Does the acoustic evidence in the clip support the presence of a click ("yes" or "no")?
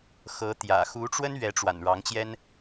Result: no